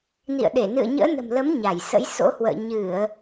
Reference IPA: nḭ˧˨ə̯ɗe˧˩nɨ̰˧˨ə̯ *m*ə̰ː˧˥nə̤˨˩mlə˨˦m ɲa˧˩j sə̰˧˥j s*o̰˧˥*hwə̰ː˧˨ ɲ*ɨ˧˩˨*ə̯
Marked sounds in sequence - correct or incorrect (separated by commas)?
incorrect, correct, correct